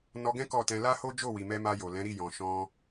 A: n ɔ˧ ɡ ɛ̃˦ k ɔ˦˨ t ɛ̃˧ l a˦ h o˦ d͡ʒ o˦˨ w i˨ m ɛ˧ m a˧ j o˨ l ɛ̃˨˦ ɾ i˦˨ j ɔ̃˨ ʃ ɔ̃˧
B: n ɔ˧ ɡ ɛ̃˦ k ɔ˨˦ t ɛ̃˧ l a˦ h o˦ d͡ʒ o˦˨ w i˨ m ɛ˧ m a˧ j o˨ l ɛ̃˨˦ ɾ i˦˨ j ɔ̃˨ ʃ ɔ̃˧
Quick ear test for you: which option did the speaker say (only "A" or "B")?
A